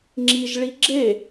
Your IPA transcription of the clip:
ŋ͡ǁ i ʒ ɭ i ɡ͡ǁ e

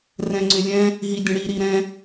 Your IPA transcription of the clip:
r ɛ̃ ŋ͡ǀ ʏ lʲ ɛ̃ | ɦ i dʲ ə̃ ɽ i ɾ i ɾ ɛ̃

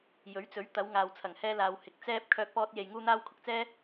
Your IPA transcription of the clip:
j ɵ˨˥ ɥ t͡s ɵ˨˥ ɥ t̪ ɐ˨˧ w ŋ aː˨ w t͡sʰ ɐ˨˩ ŋ h ɛː˧ l aː˨ w h ɪ˨ k̚ t͡s ɛː˧ p̚ kʰ œː˧ k̚ p ɔː˧ t̚ j e˨ j ŋ uː˧ n̪ aː˧ w kʰ ʊ˨ k̚ t͡s ɛː˥

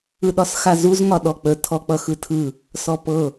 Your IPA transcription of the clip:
ɯ ɗ ɒ s x a z u z ŋ ɒ ɗ ɔ k͡p ə tʰ ɔ k͡p ʌ x ɯ tʰ ɯ | s ɔ p ɤ

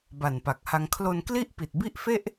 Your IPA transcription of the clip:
b a˨˩ n p a˨˩ k̚ h a˧ ŋ kʰ l o˧ n k l i˥˩ ʔ p i˨˩ t̚ b i˥˩ ʔ f e˥˩ ʔ

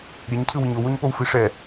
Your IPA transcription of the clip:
ɾʲ e ɲ cʰ ɯ w i ɲ o w o ɲ p o w f i ʂ ɛ

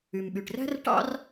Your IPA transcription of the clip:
y˩ m ɓ y˩ ʈ r æ̤˥ r ʈ ɑ̰˥ r

